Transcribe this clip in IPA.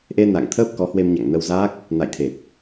ʔ e˧ n a̰˧˨ ŋ t̪ʰ əː˦˥ p̚ k ɔ˨˦ h w e˧ m ɲ a̰˧˨ ŋ n ə˧ w z aː˦˥ k̚ | n a̰˧˨ j t̪ʰ e˨˩ t̚

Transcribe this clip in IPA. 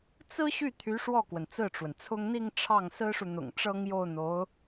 t͡s ɹ̩˥ ɕ y˥˩ t̪ʰ y˧˥ ʂ w ɔ˥˩ k w ə˩ n t͡s ɹ̩˥˩ ʈ͡ʂ w ə˩ n t͡sʰ ʊ˥ ŋ n̪ i˥˧ ŋ ʈ͡ʂʰ ɑ˥˩ ŋ s ɹ̩˥ ʂ u˨ n̪ ʊ̰˨˩ ŋ ʈ͡ʂ ɤ˥ ŋ j o˥˩ ʊ̯ n̪ o˧˥ ʊ̯

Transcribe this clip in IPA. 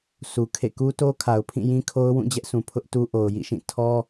s u˨ kʰ ḛ˦˨ k u˦ t o˦ kʰ a˨ ʊ̯ pʰ ĩ˦˨ j ĩ˦ kʰ o˦ ʊ̯ w ũ˦˨ d͡ʑ ɛ˦ ʔ sʰ ũ˨ pʰ ʊ˦ ʔ t u˦ ʔ o˨ ʊ̯ j ḭ˦˨ ʃ ĩ˦˨ tʰ ɔ˦

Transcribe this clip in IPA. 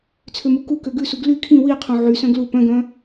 t͡sʰ ø m u k u k ø ɡ ʉ s u ɡ l y kʰ ĩ w i qʰ õ ʕ y s œ̃ ɡ l u p œ̃ ɡ œ̃

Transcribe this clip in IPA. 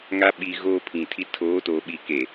ŋ a˦ ɓ i˨ ɣ oː˦ pʰ ĩ˨ tʰ i˦ tʰ oː˨˦ t oː˨ ɓ i˨ k e˨

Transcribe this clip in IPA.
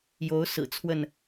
j o˨˦ ʊ̯ s ɹ̩˨˩ t͡sʰ w ə˥˨ n

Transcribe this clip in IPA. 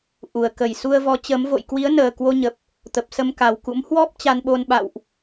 ʔ u˨˩ ə̯ k ə˨˩ j s u˧ ə̯ v ɔ˨˦ t͡ɕ əː˨˦ m v o̰˧˨ j k w i˨˦ ə̯ n əː˨˩ k w o˧ ɲ ə˨˩ p̚ | t̪ ə˨˩ p̚ s ə˧ m k a˨˩ w k ṵ˧˥ m h w ɔ˦˥ p̚ t͡ɕ a˧ n ɓ o˧ n ɓ a̰˧˨ w ʔ

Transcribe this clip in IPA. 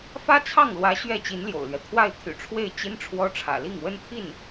f ä˥ t͡sʰ ɑ˥˩ ŋ l w ä˧˥ ɕ ɥ ɛ˥˩ t͡ɕ i˧˥ n l j o̰˨˩ ʊ̯ l ɥ ɛ˦ t̪ʰ w a˥˩ ɪ̯ t̪ʰ y̰˨˩ ʈ͡ʂʰ w e˥˩ ɪ̯ t͡ɕ i˥ n ʈ͡ʂʰ w ɔ˥ ʈ͡ʂʰ ä̰˨˩ l i˥˩ ŋ w ə˥ n t̪ʰ i˥˩ n

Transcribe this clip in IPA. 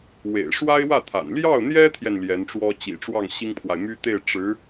w ḛ˨˩ ɪ̯ ʂ w a˥ ɪ̯ w ä˥˩ t̪ʰ a̰˨˩ n l j ɑ˥˩ ʊ̯ n̪ j ɛ˥ t̪ʰ j ɛ˨ n l j ɛ˧˥ n ʈ͡ʂ w ɔ˥ t͡ɕ ḭ˨˩ ʈ͡ʂ w ɑ˥˩ ŋ ɕ i˥ ŋ pʰ w a˨ ɪ̯ m y˥ t̪ e˥˩ ɪ̯ ʈ͡ʂ ɻ̩˧˥

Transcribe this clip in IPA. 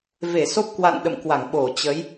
v e˧˩ s o˦˥ p̚ k w a̰˧˨ n ɗ ə̰˧˨ m k w a˧˩ ŋ ɓ o˧˩ t͡ɕ ə˨˦ j

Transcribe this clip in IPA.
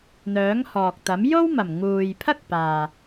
n̪ œː˨˥ ŋ h ɔː˨ k̚ t̪ ɐ˨˥ m j o˥ w m ɐ˨˩ m ŋ uː˨ j pʰ ɐ˥ k̚ p aː˨

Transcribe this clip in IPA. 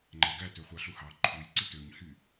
ŋ͡ǃ æ ɡ æ t ø χʷ ɑ ɬ u h ɑ ǃʰ u j ǀ i t ø ɲ h y

